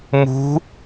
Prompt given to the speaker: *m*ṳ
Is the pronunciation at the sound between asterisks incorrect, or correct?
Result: correct